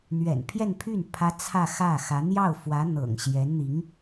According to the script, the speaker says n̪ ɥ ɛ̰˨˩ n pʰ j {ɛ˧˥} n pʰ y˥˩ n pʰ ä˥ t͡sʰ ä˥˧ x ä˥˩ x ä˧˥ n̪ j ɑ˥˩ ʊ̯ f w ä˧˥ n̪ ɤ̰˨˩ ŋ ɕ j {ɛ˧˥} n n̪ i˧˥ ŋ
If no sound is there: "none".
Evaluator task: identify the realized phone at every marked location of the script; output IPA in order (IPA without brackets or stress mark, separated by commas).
ɛ˥˧, ɛ˧˥